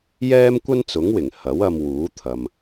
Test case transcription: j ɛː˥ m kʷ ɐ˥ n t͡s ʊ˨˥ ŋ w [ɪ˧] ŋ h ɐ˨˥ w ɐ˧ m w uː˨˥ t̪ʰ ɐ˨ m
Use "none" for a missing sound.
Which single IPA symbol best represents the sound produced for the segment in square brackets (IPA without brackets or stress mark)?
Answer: ɪ˨˩